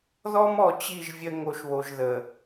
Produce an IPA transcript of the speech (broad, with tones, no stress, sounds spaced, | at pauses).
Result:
ð ɔ˦ m ɔ˨ t͡ɕ i˦˨ ʒ vʲ ə˦ ŋ o˨ ʃ β o˨ ʒ ð ə˨